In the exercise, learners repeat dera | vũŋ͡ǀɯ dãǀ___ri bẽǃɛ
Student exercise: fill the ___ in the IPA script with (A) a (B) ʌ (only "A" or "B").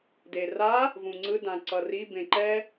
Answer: B